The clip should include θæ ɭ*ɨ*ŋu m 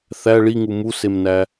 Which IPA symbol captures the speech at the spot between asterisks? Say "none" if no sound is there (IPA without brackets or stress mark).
i